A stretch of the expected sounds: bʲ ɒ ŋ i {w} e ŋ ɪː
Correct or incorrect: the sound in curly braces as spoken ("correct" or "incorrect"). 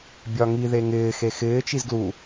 incorrect